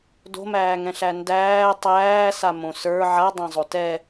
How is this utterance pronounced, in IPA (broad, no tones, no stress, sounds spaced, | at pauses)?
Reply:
d o̤ m æː ŋ ɛ̃ ɬ æ n d æː tˤ æː s a m õ s ə˞ ʕ a dˤ ã zˤ o t ɛ